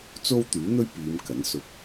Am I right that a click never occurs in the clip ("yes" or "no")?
yes